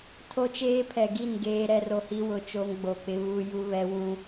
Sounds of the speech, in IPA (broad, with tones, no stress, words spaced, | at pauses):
tʰo˦t͡ʃeː˦pʰɛ˨ ɡi˦˨n ɡeː˦ɾɛ˦ro˦hi˦ wʊ˨t͡ʃo˦ŋ ɡ͡bo˨k͡pɪ˦ βu˦ju˦βɛ˦ wũ˦